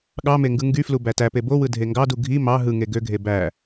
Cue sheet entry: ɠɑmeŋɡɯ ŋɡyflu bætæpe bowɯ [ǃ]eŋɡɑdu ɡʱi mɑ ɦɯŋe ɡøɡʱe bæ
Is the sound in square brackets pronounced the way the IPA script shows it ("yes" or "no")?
no